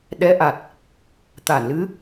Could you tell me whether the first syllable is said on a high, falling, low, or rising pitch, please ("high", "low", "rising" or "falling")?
rising